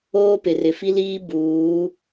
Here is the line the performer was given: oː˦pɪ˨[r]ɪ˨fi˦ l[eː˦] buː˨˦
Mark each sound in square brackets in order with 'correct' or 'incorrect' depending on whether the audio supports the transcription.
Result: correct, incorrect: iː˦

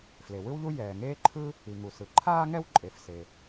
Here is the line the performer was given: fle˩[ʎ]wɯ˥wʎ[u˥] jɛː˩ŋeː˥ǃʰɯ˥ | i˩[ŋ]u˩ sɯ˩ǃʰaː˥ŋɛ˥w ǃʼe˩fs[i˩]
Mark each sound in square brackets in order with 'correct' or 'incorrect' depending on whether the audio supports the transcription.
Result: incorrect: none, correct, correct, incorrect: e˩

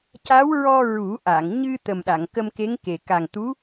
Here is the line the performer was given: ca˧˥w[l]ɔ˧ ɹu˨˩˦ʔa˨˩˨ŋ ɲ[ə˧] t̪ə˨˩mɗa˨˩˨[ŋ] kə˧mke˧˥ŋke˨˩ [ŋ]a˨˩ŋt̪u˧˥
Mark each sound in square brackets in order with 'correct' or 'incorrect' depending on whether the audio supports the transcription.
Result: incorrect: ɹ, incorrect: ɨ˧, correct, incorrect: k

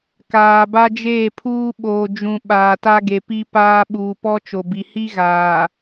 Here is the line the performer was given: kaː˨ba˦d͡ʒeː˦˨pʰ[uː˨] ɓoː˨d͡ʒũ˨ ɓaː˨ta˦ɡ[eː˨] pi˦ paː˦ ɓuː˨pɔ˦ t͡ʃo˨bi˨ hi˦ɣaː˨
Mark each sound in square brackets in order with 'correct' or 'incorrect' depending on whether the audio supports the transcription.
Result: incorrect: uː˦, incorrect: e˨

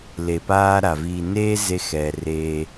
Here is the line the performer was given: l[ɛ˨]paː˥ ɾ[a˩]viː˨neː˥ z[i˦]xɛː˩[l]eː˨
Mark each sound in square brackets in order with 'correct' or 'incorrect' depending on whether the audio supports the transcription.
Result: incorrect: e˨, correct, incorrect: e˦, incorrect: r

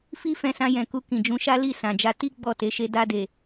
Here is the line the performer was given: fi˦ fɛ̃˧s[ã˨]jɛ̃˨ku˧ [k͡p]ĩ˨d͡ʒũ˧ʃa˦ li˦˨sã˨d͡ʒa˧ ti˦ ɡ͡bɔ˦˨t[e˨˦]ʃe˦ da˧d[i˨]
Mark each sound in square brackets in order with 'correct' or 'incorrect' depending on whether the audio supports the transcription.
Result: incorrect: ã˧, incorrect: k, correct, incorrect: e˨

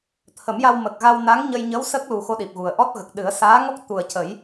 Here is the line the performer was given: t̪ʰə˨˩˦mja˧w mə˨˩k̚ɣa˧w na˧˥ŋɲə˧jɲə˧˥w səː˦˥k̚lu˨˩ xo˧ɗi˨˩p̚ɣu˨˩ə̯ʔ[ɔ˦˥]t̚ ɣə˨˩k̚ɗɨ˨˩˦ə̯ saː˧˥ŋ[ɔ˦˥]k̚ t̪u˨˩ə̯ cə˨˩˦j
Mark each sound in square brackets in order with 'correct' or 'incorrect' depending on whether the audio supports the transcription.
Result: correct, correct

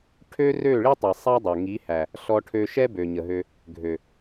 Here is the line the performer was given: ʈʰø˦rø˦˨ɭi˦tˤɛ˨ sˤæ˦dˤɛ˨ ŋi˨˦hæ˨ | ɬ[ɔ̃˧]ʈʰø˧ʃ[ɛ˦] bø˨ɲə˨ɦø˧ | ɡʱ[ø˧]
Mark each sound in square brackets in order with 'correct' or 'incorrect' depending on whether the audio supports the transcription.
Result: incorrect: ɔ˧, correct, incorrect: ø˨

